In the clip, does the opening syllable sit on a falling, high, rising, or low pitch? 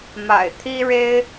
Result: low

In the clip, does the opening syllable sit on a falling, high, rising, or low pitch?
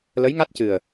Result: rising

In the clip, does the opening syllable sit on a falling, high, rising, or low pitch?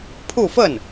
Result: falling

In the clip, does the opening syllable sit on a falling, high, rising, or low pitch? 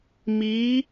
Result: rising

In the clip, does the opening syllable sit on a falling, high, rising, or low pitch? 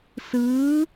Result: rising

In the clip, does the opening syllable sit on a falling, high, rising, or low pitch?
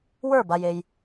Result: falling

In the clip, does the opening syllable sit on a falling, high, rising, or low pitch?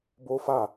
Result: high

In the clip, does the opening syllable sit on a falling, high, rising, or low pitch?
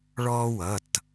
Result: high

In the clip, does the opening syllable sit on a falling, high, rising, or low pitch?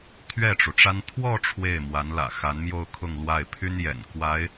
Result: falling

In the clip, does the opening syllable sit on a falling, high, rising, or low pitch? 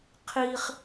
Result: high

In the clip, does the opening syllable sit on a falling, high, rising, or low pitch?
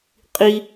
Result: high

